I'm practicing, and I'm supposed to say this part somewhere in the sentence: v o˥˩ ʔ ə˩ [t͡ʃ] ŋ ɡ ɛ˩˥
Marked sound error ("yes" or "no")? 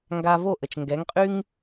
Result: no